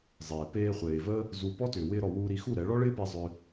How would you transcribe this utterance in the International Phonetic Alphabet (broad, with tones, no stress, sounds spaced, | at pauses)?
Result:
zˤ eː˨ p eː˧ χʷ eː˨ v əː˦ | z u˧ p ɔ˦ t ʏː˨ w ɪː˧ ɾ ɔ˨ w uː˧ ɾ i˧ x u˦˨ ɾ ɛ˨˦ ɭ ɔ˦ ɭ ɪː˦ p e˧ zˤ ʏː˧